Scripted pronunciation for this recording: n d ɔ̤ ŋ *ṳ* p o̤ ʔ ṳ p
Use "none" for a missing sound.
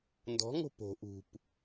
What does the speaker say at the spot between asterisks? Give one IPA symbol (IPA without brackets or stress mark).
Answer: o̤